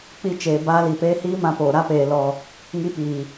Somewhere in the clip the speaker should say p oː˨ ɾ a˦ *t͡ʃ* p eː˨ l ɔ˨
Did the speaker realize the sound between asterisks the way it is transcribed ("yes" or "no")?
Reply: no